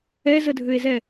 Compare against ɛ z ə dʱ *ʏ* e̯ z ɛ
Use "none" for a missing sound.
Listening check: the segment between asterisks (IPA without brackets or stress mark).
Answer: ʏ